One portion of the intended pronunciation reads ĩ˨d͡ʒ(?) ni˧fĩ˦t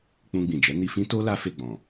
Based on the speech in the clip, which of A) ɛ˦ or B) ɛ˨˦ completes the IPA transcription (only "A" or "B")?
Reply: B